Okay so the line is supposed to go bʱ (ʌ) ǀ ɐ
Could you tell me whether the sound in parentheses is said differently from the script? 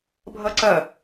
no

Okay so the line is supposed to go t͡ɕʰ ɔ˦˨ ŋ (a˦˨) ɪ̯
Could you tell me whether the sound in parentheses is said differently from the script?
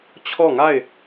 no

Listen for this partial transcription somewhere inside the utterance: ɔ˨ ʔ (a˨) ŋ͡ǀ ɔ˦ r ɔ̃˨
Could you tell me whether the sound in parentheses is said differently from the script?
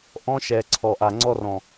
no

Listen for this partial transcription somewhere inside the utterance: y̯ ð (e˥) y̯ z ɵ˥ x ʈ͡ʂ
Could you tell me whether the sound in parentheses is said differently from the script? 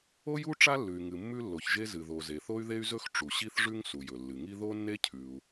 no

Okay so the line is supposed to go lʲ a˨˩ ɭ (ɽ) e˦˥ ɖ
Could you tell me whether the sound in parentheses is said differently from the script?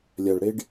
no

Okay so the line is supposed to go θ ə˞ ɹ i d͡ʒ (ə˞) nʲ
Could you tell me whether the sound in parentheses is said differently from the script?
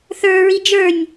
no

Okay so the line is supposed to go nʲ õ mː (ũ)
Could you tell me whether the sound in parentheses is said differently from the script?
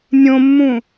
no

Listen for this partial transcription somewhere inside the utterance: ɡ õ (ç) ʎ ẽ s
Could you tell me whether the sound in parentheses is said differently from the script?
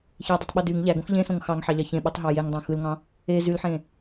yes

